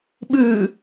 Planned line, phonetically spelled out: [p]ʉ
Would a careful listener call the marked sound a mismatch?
yes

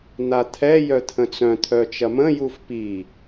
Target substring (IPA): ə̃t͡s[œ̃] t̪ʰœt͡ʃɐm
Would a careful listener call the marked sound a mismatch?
no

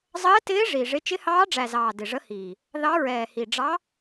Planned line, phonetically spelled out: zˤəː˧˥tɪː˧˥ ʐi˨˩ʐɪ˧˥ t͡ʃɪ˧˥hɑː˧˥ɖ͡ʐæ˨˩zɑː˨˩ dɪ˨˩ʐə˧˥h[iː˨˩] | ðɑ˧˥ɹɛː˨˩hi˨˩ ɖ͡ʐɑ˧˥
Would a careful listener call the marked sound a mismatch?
no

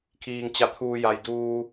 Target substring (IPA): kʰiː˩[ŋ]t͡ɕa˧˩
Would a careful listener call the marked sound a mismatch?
no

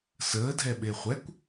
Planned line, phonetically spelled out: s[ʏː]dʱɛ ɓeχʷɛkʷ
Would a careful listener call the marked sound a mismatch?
yes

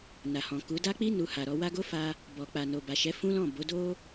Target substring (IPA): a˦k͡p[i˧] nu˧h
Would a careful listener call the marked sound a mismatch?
yes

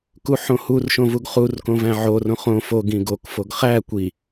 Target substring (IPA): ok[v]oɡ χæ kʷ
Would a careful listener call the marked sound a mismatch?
yes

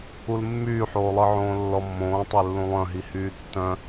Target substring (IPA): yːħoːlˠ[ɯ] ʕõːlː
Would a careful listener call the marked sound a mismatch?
no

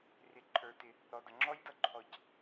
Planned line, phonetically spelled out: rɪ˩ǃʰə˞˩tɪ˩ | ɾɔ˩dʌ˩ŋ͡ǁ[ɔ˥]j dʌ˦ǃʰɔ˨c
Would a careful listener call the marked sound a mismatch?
no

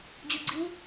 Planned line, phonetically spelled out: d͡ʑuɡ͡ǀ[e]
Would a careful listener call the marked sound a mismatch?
yes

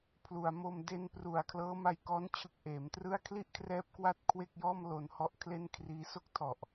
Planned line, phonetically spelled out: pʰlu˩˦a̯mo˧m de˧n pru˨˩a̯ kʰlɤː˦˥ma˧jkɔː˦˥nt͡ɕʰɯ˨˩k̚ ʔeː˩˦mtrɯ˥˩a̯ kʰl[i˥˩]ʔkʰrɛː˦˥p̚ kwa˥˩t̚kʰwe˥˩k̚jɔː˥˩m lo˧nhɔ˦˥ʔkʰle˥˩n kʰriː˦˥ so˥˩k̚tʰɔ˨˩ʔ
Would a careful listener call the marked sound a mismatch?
no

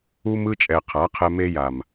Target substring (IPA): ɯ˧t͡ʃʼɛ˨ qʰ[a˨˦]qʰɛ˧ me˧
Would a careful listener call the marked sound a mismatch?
no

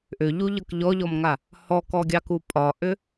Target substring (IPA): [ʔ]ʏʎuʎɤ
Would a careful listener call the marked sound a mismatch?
no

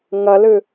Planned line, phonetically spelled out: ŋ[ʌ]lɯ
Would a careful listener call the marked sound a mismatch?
no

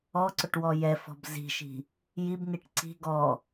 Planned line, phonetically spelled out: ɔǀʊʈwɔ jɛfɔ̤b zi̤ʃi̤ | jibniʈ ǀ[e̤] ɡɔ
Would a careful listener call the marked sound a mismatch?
yes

